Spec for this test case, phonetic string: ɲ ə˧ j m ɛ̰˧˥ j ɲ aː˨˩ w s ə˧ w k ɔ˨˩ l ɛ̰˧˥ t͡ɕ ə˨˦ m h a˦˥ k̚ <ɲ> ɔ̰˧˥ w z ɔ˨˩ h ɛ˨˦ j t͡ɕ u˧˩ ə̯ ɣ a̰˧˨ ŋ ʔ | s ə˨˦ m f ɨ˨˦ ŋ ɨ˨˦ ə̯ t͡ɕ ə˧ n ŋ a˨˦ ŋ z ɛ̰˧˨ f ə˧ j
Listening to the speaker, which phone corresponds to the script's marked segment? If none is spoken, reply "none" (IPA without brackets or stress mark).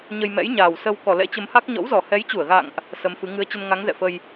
ɲ